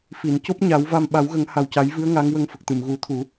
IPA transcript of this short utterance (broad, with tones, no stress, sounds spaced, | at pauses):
f i˨˩˨ n c o˦˥ p̚ ɲ a˨˩˦ w v a˧ m ɓ a˨˩˦ w ɣ ə˨˩˦ ŋ h a˨˩ w c a˨˩˦ j v ɨ˧˥ ə̯ ŋ a˧˥ ŋ w ə˧ ŋ f ə˨˩ k̚ t̪ ɨ˨˩˨ m ɣ u˨˩˦ t̪ʰ u˨˩˦